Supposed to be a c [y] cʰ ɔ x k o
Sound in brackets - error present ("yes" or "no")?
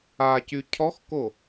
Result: no